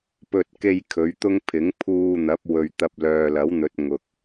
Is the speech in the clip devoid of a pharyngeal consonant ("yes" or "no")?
yes